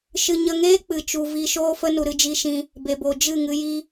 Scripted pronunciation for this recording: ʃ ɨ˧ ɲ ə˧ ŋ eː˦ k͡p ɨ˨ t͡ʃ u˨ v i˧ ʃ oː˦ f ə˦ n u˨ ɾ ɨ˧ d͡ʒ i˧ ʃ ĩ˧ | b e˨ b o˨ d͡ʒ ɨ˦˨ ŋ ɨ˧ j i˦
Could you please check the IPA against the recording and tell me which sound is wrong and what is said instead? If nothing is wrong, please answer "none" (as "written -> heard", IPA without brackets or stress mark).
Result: none